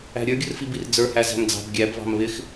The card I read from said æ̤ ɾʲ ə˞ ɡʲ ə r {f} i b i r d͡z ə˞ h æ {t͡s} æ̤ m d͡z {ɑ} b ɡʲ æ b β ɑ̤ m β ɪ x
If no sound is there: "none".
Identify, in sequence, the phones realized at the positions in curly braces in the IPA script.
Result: f, z, ɑ̤

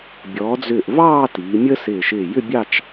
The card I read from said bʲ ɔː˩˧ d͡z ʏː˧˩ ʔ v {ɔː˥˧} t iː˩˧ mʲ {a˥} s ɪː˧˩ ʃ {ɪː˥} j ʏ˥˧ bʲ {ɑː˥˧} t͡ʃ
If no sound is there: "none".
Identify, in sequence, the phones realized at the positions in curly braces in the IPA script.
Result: ɑː˥˧, ə˥, ɪː˧˩, ɑ˥˧

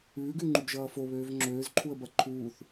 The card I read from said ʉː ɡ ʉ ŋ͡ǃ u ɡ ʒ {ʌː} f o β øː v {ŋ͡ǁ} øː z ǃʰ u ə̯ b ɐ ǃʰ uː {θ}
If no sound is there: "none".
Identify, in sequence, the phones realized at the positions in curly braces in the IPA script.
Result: ʌː, ŋ͡ǁ, θ

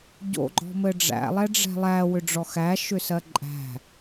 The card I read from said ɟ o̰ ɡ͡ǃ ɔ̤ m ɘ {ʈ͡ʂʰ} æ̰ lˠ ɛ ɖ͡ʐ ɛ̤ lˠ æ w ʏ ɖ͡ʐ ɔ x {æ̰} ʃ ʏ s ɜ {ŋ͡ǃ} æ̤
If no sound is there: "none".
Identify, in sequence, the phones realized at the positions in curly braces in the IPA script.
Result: ɖ͡ʐ, æ, ǃʼ

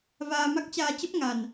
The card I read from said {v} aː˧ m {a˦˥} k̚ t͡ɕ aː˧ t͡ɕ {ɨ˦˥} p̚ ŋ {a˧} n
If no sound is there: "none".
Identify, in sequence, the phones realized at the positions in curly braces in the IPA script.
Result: v, a˦˥, ə˦˥, a˧

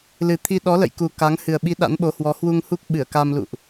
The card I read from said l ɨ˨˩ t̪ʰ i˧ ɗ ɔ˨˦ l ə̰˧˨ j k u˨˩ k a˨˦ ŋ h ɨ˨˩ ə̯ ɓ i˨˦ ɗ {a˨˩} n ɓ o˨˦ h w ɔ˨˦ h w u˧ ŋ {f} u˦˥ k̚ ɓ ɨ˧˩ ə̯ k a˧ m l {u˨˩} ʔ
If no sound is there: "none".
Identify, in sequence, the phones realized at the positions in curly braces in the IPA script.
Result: a̰˧˥, h, ṵ˧˨

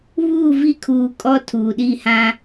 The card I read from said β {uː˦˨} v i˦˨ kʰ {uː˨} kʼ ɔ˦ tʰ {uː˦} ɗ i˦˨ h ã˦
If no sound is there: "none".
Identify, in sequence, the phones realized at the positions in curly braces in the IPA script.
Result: uː˦˨, uː˨, uː˨

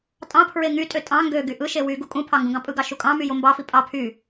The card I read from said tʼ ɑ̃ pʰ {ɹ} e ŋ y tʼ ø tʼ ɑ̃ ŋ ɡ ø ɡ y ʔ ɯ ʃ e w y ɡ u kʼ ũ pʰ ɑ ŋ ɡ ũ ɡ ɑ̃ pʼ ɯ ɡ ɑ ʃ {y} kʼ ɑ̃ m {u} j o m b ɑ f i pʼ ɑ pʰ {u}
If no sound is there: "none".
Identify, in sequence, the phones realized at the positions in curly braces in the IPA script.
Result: ɹ, u, y, y

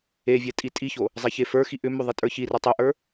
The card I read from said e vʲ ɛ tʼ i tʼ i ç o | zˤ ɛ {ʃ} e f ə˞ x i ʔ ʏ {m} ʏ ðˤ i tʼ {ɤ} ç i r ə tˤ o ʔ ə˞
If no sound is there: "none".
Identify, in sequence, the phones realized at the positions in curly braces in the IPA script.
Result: ç, m, ə˞

